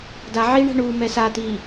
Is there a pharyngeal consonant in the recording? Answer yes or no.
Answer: yes